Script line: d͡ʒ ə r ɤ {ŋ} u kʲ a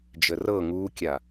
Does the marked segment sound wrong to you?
no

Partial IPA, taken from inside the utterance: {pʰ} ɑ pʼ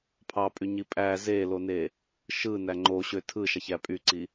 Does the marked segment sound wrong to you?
no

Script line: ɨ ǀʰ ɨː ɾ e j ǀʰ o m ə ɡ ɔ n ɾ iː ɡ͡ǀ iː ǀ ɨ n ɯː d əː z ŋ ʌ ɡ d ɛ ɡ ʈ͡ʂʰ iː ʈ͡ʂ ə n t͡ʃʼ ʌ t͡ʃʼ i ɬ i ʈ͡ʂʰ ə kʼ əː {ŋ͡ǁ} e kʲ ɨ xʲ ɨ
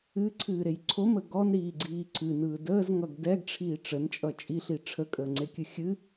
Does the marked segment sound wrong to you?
yes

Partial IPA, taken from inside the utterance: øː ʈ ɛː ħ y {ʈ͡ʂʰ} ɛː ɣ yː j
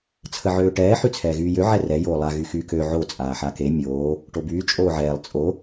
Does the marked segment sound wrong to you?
yes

